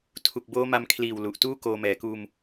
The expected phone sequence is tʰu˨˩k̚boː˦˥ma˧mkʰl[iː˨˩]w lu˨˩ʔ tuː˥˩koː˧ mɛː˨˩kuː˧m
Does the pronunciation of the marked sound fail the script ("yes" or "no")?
no